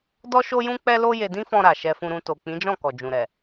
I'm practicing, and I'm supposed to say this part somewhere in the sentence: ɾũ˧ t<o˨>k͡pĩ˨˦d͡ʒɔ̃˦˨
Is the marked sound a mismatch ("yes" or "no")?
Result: no